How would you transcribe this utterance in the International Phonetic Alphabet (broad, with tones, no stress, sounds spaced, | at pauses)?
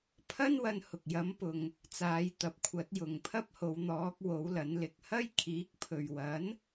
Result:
pʰ ɐ˥ n w ɐ˧ n h ʊ˨ k̚ j ɐ˨˧ m p ʊ˧ ŋ | t͡s aː˨˧ j t̪ ɐ˨ p̚ kʷʰ ɐ˨˥ t̚ j ʊ˨ ŋ pʰ ɐ˥ p̚ h o˨˧ w n̪ ɔː˨˥ k̚ w o˨˥ w l ɐ˨˥ n l ɪ˧ k̚ h ɐ˥ j kʰ iː˨˥ k̚ pʰ ɵ˨ ɥ w ɐ˨˥ n